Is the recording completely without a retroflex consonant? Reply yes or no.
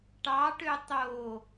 no